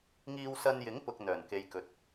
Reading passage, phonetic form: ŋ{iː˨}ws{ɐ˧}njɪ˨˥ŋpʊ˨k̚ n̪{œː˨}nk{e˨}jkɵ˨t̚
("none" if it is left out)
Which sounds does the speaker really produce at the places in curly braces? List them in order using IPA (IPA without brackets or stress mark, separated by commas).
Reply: iː˧, ɐ˧, œː˨˩, e˨